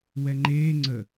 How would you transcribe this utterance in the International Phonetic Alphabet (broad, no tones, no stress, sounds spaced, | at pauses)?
w ɛ ŋ͡ǃ eː ŋ͡ǀ ə